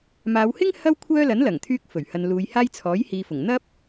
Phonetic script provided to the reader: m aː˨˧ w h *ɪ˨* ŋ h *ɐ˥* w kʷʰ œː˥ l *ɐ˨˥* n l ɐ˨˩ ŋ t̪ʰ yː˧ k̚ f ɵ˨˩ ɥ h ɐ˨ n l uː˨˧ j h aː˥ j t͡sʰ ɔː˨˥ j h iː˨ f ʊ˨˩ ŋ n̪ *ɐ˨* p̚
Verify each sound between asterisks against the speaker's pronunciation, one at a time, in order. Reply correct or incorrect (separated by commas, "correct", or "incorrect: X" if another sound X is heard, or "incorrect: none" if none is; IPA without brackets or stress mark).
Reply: incorrect: ɪ˥, correct, correct, incorrect: ɐ˥